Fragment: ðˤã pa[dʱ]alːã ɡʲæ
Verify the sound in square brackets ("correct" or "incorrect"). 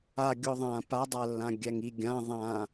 incorrect